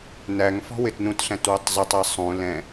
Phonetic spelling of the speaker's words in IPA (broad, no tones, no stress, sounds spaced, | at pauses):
n æ ŋ f ɔ̤ w ɪ t n ũ t ɬ æ̃ t w ɪ tˤ zˤ ə tˤ ɛ sˤ ũ l ɛ̃